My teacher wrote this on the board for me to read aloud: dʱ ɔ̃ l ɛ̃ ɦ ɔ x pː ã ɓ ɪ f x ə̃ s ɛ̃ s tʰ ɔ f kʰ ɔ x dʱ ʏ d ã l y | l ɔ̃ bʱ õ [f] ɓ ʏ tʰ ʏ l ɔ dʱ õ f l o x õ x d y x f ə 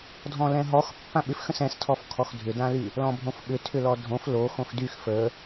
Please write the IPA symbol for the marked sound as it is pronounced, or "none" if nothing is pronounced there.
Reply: f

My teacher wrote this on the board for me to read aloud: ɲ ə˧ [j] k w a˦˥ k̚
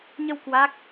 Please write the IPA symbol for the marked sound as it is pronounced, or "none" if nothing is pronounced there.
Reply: w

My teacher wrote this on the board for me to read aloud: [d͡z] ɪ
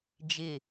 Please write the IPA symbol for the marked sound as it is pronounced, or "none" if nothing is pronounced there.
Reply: d͡ʒ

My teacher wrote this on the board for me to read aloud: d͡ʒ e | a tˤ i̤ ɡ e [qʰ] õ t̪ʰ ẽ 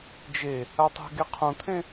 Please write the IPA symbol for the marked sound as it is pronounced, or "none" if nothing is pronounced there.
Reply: qʰ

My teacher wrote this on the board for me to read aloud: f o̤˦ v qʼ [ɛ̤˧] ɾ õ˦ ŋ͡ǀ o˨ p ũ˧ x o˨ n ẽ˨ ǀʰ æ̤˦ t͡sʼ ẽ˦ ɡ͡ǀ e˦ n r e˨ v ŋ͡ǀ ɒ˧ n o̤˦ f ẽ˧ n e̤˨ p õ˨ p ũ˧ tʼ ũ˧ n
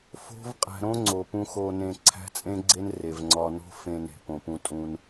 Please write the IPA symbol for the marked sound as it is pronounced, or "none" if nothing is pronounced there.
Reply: æ̤˧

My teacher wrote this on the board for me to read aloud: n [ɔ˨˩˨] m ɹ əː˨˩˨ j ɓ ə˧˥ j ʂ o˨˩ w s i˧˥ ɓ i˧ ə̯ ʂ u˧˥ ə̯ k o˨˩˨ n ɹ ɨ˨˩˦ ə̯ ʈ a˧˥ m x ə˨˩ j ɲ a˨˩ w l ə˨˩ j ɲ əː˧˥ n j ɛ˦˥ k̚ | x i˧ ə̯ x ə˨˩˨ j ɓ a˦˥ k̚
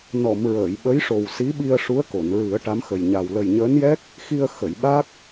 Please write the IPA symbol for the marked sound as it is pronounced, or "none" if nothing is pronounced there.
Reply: ɔ˨˩˨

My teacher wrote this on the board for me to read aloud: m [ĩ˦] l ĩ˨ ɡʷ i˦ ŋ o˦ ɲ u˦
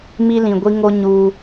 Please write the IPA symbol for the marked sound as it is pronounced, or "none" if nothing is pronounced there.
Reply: i˦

